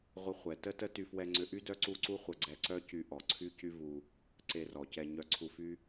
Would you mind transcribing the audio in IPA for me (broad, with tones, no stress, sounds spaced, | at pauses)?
ʁʷ ə˧ χʷ ɛ˩ t ə˥ t ə˥ t y˧ f w ɛ˧ ŋ͡ǀ ʏ˧ ʔ y˥ d œ˥ ǀ u˥ ǀ u˥ χʷ ə˧ ɡ͡ǀ ɛ˧ ǀ œ˥ c y˧ ʔ ɔ˩ ǀʰ y˥ c y˥ v u˧ | ǀ e˧ r ɔ˩ c ɛ˧ ɲ œ˧ ǀʰ u˧ f y˥